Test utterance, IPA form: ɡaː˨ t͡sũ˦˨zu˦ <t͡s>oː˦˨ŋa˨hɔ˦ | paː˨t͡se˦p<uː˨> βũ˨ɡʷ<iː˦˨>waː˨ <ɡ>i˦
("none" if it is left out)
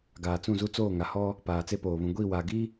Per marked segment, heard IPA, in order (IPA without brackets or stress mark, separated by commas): t͡s, oː˨, iː˦˨, ɡ